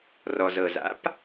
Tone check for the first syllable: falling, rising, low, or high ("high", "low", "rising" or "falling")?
low